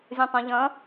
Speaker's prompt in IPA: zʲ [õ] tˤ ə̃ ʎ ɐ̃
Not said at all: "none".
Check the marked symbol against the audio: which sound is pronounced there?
õ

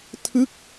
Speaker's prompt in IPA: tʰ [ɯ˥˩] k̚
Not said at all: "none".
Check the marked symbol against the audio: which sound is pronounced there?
ɯ˥˩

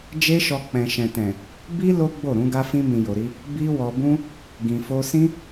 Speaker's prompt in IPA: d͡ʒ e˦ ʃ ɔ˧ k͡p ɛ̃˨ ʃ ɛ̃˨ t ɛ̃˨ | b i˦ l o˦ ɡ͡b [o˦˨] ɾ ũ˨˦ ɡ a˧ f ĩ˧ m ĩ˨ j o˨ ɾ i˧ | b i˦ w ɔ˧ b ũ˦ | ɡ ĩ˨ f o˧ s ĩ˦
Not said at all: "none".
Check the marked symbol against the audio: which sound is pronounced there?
o˦˨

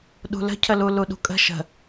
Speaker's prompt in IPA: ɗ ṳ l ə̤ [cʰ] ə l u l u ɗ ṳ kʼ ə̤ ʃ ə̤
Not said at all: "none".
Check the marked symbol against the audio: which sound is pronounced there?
cʰ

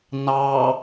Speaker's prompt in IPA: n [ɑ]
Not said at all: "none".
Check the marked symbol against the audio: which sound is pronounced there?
ɑ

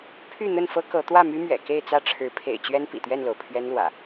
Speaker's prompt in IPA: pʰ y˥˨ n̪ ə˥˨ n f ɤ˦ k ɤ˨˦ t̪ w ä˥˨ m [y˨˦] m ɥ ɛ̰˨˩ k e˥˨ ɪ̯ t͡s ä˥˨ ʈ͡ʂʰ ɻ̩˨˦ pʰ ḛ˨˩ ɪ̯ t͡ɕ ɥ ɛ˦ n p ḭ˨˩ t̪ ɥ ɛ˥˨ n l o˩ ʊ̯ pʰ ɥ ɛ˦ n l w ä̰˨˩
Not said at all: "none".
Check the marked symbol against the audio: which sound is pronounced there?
y˦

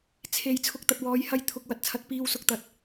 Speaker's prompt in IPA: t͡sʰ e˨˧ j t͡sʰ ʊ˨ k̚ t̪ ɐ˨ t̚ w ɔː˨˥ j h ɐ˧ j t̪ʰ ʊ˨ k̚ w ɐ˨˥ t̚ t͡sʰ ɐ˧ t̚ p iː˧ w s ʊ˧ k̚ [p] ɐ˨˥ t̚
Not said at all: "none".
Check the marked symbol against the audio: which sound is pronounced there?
t̪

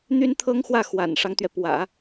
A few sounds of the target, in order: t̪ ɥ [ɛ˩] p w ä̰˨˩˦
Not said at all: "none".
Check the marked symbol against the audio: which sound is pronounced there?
ɛ˩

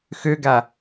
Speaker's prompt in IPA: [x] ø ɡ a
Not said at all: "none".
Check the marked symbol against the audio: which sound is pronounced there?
x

